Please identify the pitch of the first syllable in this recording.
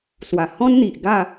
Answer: low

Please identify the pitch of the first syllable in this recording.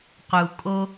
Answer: low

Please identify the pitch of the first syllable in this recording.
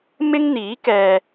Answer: high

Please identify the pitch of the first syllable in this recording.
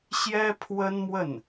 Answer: high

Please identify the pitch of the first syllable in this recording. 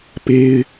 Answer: high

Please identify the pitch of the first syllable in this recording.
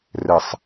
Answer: low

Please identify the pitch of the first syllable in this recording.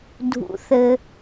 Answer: low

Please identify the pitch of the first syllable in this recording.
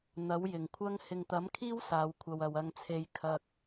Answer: rising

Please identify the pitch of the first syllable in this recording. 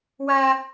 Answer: high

